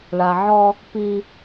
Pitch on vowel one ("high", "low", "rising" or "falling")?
low